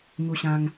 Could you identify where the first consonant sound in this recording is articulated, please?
velar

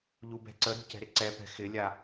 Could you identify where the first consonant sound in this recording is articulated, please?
palatal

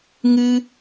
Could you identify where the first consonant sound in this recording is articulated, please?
velar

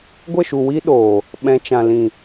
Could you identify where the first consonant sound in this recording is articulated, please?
velar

